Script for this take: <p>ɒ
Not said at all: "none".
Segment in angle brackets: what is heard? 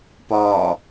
p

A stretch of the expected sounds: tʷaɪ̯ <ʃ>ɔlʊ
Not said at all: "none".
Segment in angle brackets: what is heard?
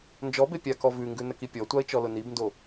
t͡ʃ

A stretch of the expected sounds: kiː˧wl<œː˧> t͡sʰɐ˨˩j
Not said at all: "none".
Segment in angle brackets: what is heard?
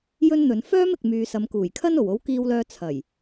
œː˧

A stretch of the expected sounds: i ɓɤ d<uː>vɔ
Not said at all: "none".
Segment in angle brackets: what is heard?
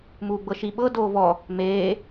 oː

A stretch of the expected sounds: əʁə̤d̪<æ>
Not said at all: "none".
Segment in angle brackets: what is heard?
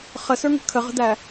æ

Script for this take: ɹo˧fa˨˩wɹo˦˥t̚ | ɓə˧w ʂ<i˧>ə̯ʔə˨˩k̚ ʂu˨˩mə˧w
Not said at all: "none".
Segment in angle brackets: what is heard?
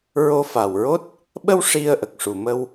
i˧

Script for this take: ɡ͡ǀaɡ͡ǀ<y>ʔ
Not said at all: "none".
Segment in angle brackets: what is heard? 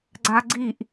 i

